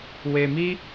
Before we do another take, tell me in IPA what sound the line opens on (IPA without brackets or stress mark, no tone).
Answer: w